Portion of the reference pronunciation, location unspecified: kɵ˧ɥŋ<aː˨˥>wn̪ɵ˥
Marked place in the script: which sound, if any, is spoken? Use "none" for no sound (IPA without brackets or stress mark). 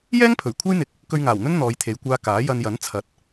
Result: aː˨˩